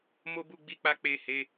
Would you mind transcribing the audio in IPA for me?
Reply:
m o˦ b u˦˨ ɡ͡b i˧ k͡p a˧ k͡p e˨ h e˨˦

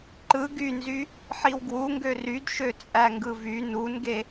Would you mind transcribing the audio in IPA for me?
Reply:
ǃ ɯ ɡ y n z y | ħ i w ɡ w u ŋ ɡ ø r y d ʃ ø t͡sʼ æ ŋ ɡ ɯ v y n u n ɡ e

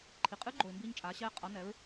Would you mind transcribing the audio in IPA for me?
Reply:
ǃʰ i˩ qʼ ɨ˧˥ ɡ͡ǃ o˩ ɪ̯ m b iː˧ ɲ t͡ʃʼ aː˩˧ ɕ ɛː˧ qʼ ʌ˩˧ n ɛ˩˧ ɹ

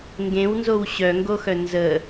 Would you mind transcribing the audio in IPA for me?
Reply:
ŋ ɡ ẽ w n z o w ɕ œ ŋ ɡ o x œ n z ə

